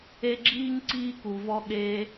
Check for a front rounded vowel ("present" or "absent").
absent